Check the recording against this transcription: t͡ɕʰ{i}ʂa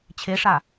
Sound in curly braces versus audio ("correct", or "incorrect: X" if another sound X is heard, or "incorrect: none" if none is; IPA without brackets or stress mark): incorrect: e